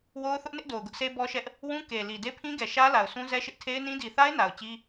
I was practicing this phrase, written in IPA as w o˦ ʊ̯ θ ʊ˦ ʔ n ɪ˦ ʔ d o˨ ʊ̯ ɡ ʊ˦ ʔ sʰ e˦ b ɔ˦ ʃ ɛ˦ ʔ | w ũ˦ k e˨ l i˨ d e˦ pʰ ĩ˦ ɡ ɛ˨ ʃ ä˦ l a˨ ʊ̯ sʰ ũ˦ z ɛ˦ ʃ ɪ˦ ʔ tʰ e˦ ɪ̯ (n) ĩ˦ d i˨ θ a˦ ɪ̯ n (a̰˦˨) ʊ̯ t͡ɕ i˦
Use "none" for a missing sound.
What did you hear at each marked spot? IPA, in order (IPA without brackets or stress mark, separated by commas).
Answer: n, a˨